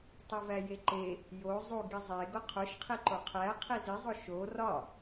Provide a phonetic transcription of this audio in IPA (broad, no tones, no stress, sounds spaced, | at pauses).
tˤ u v æ j e ǃ e | j o zˤ u ɡ i zˤ e ɡ o qʰ o ʃ qʰ i ǃ o qʰ æ qʰ i z i zˤ o ʃ o r ɒ